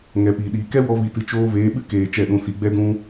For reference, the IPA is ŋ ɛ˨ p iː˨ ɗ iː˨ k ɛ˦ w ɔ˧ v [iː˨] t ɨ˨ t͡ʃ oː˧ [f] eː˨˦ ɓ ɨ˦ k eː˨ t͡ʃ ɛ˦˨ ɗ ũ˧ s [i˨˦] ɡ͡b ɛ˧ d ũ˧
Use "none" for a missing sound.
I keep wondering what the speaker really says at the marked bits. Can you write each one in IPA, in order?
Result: i˨, v, i˨˦

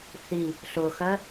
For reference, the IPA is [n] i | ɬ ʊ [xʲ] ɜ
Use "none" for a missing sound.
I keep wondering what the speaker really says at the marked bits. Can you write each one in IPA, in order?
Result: θ, x

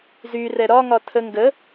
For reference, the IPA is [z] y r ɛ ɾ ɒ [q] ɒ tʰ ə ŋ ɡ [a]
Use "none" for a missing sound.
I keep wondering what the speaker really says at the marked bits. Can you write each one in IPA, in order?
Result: z, ŋ, ə

